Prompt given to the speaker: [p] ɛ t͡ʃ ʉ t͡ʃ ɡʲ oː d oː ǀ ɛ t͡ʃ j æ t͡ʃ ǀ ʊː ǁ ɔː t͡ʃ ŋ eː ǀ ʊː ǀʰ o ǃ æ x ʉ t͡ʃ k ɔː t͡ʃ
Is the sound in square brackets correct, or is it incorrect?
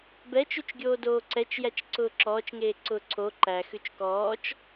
incorrect